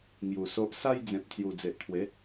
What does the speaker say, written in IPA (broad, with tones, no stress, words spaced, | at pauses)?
ŋju˨˩so˦ʔ sa˦jd͡zẽ˨p̚ t͡sju˨˩d͡ze˨ʔt̪ʰwe˨˦